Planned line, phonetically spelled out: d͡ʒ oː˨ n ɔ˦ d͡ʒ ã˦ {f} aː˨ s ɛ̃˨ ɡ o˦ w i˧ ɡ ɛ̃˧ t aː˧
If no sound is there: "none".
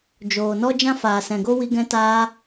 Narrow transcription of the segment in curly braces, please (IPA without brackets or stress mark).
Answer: f